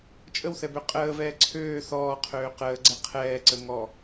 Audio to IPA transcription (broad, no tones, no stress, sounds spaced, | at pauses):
t͡ʃʼ ə w θ ɛ b ø qʼ əː v ɛː ǀʰ øː θ ɔː qʰ øː q əː ɡ͡ǀ ɛ qʰ ɛː ǀ ə ŋ ɔ